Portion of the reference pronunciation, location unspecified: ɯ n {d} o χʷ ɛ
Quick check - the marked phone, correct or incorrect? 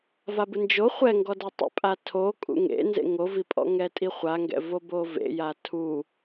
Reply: incorrect